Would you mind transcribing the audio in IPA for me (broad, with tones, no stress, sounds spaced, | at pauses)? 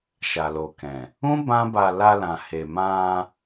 ʃ a˨ l o˨ k ɛ̃˨ | ũ˦ b ã˦ b a˧ l a˧ l ã˨ h e˨ m ã˧